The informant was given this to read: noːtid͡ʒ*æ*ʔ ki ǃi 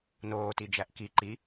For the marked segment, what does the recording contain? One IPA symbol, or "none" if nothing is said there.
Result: æ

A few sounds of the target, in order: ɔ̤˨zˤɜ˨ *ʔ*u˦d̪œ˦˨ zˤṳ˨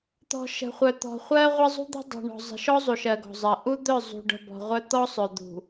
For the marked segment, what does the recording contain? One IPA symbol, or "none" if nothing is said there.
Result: ʔ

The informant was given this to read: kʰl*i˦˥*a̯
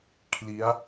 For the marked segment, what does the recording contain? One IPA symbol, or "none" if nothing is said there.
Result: i˦˥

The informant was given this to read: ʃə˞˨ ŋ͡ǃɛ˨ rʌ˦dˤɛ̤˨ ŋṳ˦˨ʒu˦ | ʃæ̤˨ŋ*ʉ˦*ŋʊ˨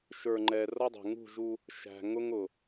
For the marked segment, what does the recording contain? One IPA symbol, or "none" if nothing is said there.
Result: ʊ˦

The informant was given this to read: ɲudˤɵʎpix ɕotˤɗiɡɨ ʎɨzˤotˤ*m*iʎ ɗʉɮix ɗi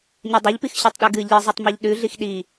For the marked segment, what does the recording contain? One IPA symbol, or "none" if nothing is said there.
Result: m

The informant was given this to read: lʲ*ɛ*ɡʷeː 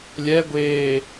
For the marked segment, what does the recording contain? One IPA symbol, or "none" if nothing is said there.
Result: ɛ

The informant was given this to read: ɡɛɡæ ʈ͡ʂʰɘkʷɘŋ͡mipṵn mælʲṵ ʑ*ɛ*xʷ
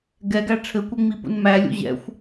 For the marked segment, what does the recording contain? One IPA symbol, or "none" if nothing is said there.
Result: ɛ̰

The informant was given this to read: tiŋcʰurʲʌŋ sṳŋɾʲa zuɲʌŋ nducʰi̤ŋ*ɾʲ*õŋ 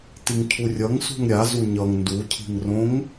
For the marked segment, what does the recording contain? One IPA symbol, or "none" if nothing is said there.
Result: r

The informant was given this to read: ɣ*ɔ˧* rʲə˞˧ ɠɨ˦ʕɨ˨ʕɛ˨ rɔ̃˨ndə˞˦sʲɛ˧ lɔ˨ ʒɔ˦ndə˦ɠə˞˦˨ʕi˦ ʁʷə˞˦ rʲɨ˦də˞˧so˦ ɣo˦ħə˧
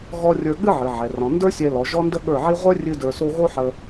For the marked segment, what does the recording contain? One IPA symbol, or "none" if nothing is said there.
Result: ɔ˧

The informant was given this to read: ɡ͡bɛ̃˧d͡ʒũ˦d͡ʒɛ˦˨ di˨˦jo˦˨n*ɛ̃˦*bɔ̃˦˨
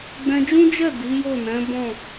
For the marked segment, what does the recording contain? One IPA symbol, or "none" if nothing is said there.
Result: ɛ̃˨˦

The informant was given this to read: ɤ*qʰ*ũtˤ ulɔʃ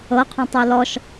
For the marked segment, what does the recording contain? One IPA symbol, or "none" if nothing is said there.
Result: qʰ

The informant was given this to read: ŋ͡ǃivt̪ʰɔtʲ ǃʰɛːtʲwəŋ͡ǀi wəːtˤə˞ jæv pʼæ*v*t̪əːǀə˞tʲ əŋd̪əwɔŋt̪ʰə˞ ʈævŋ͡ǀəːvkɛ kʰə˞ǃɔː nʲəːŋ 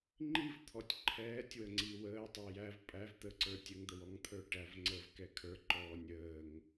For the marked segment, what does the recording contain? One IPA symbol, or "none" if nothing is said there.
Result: v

